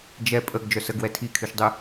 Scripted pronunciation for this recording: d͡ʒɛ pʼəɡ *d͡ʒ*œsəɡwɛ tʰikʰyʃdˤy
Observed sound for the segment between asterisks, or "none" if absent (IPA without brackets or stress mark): d͡ʒ